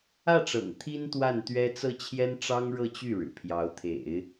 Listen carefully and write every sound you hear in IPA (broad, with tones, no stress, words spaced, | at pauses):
ä˥˩ʈ͡ʂɤ̰˨˩ŋ t̪ʰi˥nt̪wa˥˩nt̪ɥɛ˥ t͡sɤ˥˩t͡ɕʰjɛ˥n ʈ͡ʂɑ˥ŋɻɤ˥˧t͡ɕy˥˩ ɻɻ̩˨˩pʰjɑ˧˥ʊ̯t̪ʰḛ˨˩˦ɪ̯